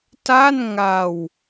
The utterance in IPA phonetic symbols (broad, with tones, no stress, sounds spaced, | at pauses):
t a˥˩ n ŋ a˧ w